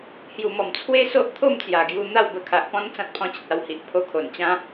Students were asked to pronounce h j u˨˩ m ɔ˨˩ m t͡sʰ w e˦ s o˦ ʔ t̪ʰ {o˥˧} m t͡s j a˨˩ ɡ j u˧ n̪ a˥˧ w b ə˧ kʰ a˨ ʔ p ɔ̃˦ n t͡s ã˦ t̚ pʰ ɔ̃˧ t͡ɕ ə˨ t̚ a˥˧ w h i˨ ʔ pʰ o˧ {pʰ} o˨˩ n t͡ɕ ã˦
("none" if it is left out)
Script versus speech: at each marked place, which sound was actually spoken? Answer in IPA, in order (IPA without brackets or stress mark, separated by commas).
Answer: o˥˧, kʰ